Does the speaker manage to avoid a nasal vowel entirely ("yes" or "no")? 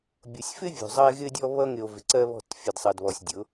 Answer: yes